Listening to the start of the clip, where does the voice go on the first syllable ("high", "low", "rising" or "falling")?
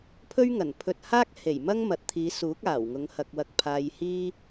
high